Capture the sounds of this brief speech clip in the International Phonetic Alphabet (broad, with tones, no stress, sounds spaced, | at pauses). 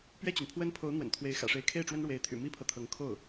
p ɥ ɛ˥˩ t͡ɕ y˩ n pʰ w ə˥ n pʰ o˧˥ ʊ̯ n̪ w ə̰˨˩ n t̪ʰ w e˧˥ ɪ̯ x ä̰˨˩ ʂ e˧˥ ɪ̯ kʰ e˥˩ ɪ̯ ʈ͡ʂ w ə˥ n ɻ w e˧˥ ɪ̯ t̪ʰ y̰˨˩ m i˥ pʰ ɤ˨ t̪ʰ ɤ˧˥ ŋ kʰ o˥˩ ʊ̯